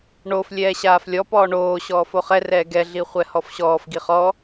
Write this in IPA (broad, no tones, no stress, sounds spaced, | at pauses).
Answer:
ɳ o f lʲ ɛː ɕ aː f lʲ ɔ p ɔː ɳ oː ɕ ɔː f o χ ɛ r ɛː ɡ ɛ ɮ i χʷ ɛ h ɔ f ɕ ɔː f ɡ i χ ɔ